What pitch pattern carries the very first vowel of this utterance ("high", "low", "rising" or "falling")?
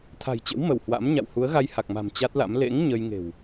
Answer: low